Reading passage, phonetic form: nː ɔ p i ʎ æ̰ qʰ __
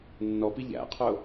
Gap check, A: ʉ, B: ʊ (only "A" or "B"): B